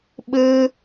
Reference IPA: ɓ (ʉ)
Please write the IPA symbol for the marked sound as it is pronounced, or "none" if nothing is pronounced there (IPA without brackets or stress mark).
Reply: ɘ